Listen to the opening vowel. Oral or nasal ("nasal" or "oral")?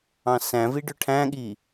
nasal